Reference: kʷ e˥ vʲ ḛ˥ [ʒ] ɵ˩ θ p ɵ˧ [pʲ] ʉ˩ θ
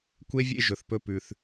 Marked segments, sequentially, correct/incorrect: correct, incorrect: p

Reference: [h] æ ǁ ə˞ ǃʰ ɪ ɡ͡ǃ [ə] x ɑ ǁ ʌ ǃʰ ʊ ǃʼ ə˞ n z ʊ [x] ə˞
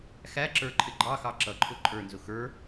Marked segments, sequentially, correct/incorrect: incorrect: x, incorrect: ɑ, correct

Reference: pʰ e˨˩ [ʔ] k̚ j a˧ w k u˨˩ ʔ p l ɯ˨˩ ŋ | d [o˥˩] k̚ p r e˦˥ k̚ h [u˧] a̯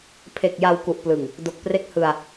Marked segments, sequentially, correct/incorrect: incorrect: none, incorrect: o˨˩, incorrect: ɯ˧

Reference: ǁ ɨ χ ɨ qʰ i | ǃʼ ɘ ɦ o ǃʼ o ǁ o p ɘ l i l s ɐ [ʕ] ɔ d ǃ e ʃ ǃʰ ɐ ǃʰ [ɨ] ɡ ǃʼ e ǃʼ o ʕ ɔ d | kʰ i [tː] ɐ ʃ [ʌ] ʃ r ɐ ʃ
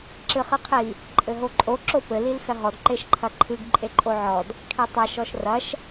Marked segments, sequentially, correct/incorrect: incorrect: ɦ, correct, incorrect: tˤ, incorrect: ɔ

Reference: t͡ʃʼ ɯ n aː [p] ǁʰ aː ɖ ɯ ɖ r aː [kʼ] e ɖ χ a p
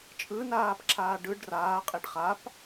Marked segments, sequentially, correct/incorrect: correct, incorrect: qʼ

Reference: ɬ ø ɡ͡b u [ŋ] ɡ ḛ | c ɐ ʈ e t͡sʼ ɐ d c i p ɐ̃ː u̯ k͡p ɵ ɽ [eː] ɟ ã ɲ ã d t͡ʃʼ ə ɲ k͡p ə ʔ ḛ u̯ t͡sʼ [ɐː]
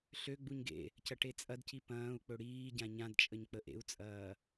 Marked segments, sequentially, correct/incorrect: incorrect: ɲ, incorrect: iː, correct

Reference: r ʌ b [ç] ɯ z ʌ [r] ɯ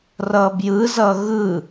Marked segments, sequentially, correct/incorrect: incorrect: j, incorrect: ɣ

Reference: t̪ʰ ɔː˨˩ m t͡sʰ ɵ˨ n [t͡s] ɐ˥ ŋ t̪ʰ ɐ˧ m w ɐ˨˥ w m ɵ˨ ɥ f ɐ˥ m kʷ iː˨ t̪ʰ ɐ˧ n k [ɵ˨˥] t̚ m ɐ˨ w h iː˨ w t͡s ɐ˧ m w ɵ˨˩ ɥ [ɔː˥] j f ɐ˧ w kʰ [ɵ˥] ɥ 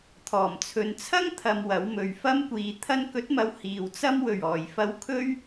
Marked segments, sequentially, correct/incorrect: incorrect: t͡sʰ, correct, incorrect: ɔː˨˩, correct

